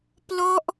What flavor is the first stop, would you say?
plain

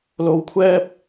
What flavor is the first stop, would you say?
aspirated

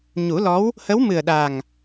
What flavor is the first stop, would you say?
implosive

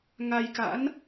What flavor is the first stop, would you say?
plain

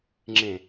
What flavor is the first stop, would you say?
click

